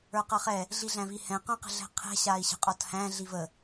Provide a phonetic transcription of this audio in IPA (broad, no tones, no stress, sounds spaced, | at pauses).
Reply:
ə˞ q ʌ χ ɛ | ɮ i ɮ æ̃ v i h ɛ̃ q œ̃ q ə̤ ɮ ɛ̤ qʰ ɛ̤ ɕ a i̯ ɕ ə̤ qʼ ɔ t h æ̃ ɮ i v ə